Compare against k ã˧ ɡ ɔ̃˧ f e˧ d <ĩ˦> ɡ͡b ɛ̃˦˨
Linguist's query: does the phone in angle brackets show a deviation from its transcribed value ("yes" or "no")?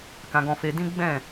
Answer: no